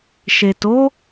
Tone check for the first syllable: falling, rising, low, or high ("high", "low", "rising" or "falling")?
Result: low